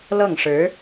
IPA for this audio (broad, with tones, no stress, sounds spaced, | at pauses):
l ɤ˥˩ ŋ ʂ ɻ̩˧˥